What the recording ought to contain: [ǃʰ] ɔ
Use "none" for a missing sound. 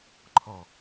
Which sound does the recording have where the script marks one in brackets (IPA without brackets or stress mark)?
ǃʰ